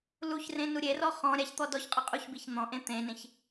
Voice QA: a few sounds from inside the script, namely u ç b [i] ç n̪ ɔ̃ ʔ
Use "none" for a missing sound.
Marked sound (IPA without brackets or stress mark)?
i